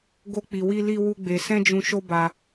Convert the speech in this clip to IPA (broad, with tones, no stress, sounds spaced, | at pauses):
ɡ o˦ k͡p i˧ w i˦ l i˦ w u˦ ɡ͡b e˧ s ɛ̃˦ d͡ʒ ũ˧ ʃ o˦ b a˧